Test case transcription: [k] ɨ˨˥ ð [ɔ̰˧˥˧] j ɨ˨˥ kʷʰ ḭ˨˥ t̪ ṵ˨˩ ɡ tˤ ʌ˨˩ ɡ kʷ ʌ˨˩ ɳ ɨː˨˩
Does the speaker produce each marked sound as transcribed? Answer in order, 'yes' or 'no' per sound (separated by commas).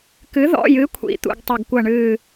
yes, yes